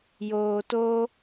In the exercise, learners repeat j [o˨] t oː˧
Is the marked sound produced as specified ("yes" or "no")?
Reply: no